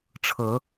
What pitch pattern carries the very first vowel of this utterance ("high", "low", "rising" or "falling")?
rising